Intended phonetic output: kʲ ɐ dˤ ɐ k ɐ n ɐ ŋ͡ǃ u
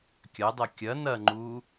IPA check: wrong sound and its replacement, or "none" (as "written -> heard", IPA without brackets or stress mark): k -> kʲ